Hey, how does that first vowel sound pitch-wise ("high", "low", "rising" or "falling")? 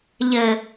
low